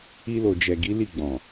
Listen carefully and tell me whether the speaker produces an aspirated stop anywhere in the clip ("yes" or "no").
no